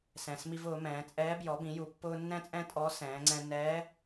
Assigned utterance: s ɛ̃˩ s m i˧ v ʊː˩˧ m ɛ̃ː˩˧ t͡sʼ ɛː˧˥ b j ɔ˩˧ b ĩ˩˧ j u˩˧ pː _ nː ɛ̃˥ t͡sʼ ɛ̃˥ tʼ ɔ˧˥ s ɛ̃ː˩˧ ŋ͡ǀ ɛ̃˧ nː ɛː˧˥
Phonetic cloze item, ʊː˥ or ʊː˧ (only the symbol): ʊː˧